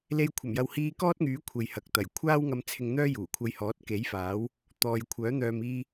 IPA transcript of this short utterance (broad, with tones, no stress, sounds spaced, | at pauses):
l e˧ j kʷʰ ɐ˨˩ m j ɐ˨ w h iː˧ k ɔː˥ t̚ ŋ yː˨˥ kʷʰ e˨ j h ɐ˨ k̚ t̪ ɐ˨˩ j kʷʰ aː˥ w ŋ ɐ˧ m t͡sʰ ɪ˧ ŋ n̪ œː˥ j uː˨˩ kʷʰ ɐ˧ j h ɔː˨˥ t̚ k e˨˥ j f aː˨˥ w | t̪ ɔː˨ j kʷʰ œː˨˥ n̪ œː˨ m iː˧